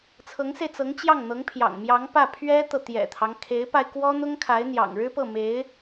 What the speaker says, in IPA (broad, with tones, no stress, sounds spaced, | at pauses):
t͡sʰ ɤ˧˥ ŋ s e˧ ɪ̯ t͡s ɤ˧˥ ŋ t͡ɕ j ɑ˥˩ ŋ n̪ ɤ˧˥ ŋ pʰ j ɑ̰˨˩ ŋ m j ɑ˧˥ ŋ p ä˥˩ pʰ ɥ ɛ˥ t̪ ɤ˨ t̪ j ɛ̰˨˩ t̪ʰ ɑ˦ ŋ kʰ e˧˥ ɪ̯ p a˧ ɪ̯ k w ɔ˥ n̪ ʊ˥ ŋ kʰ a˧˥ ɪ̯ n̪ j ɑ̰˨˩ ŋ ɻ ɻ̩˥ p ɤ˥˩ m e˧˥ ɪ̯